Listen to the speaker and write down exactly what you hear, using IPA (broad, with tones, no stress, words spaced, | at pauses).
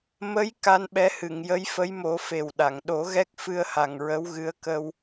mə˧˥j ka˧nɓɛ˧˥hɨ˨˩˨ŋ jə˧˥jfə˧˥jmo˨˩˦ fe˨˩wɗa˨˩˨ŋ ɗo˨˩˦ɣɛ˦˥k̚ fɨ˧ə̯ha˨˩ŋ ɹə˧˥wɣɨ˧˥ə̯kə˧w